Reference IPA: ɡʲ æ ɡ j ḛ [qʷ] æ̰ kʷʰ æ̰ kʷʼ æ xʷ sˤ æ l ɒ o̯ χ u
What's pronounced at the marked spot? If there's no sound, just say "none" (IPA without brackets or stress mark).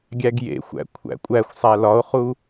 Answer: xʷ